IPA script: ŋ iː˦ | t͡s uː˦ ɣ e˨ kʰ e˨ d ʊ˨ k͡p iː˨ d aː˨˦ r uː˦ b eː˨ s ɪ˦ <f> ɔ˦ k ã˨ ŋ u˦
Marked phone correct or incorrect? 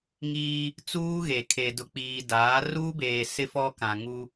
correct